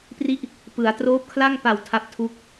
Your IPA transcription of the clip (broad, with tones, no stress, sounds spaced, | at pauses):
p r i˥˩ ʔ | p ɯ˩˦ a̯ t r oː˦˥ p̚ kʰ l a˥˩ ŋ p a˨˩ w tʰ a˦˥ p̚ tʰ u˦˥ k̚